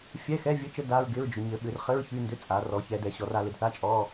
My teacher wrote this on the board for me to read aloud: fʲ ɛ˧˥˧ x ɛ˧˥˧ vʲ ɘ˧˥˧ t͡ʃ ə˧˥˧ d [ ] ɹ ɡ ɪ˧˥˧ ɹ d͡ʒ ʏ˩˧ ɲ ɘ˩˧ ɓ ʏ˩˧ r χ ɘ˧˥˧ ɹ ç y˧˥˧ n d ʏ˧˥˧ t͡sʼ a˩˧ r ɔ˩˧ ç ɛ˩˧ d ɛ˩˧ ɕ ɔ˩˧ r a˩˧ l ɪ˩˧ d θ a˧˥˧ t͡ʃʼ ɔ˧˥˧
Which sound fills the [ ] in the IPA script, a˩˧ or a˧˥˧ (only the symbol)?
a˧˥˧